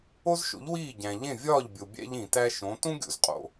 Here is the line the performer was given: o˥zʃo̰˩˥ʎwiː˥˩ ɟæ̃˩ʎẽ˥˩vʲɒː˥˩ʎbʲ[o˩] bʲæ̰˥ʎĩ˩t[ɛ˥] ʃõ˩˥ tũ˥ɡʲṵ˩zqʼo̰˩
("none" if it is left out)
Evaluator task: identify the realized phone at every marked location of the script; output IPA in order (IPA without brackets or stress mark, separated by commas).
o˩, æ˥